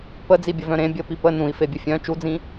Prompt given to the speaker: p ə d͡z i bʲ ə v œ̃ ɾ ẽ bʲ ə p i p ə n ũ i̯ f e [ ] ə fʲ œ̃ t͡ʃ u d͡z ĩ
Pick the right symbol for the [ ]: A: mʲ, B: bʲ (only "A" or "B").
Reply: B